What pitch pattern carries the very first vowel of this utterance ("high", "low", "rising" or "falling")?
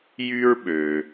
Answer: high